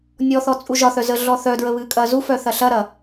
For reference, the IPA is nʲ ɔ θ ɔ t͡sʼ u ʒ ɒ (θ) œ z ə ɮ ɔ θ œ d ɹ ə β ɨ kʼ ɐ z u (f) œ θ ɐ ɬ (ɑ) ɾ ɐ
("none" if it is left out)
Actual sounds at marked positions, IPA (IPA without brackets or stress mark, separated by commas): θ, f, ɐ